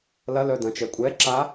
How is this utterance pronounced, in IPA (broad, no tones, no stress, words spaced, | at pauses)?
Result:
lɐlœ dɐ̃t͡ʃɛkʷʼɛǁa